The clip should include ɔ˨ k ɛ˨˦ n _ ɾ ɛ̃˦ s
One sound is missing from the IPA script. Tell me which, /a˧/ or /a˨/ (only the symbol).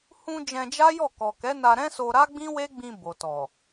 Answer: a˧